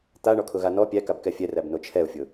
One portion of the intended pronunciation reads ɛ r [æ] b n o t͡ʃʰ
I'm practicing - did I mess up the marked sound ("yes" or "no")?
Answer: no